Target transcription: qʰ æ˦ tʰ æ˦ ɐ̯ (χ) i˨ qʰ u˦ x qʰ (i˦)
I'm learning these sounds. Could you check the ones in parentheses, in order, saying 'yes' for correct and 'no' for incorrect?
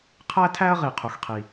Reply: no, yes

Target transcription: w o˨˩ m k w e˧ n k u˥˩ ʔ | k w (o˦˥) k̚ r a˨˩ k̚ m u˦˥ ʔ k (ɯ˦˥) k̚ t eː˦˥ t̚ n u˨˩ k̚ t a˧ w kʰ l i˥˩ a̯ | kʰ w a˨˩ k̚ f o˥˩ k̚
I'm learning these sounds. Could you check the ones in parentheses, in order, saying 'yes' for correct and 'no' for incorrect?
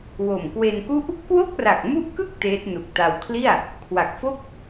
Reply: no, no

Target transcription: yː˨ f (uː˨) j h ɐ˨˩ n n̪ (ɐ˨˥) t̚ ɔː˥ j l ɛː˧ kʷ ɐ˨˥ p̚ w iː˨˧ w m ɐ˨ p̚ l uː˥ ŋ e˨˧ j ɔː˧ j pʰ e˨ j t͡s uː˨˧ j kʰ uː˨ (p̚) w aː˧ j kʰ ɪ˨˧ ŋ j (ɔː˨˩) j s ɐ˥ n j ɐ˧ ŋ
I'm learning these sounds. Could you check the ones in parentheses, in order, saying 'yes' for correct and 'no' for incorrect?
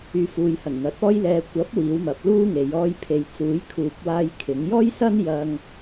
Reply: yes, yes, yes, no

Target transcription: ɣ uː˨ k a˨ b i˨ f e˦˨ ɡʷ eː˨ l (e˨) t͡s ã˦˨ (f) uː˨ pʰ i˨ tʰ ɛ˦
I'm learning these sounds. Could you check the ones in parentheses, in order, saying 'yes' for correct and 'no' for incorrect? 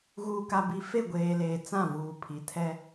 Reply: no, no

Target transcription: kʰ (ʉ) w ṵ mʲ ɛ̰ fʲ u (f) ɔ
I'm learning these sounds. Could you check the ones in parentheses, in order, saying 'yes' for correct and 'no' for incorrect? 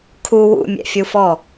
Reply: no, yes

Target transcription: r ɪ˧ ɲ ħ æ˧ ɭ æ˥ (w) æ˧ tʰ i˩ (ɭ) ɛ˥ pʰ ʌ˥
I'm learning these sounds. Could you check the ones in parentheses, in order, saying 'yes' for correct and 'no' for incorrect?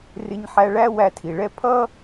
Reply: yes, yes

